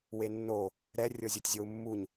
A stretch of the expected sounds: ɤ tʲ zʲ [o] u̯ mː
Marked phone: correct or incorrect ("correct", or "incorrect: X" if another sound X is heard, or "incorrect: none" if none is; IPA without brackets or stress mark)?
correct